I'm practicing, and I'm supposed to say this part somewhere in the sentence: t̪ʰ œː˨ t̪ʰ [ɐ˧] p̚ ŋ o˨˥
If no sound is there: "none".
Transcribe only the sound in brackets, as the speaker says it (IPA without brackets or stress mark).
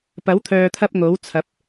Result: ɐ˧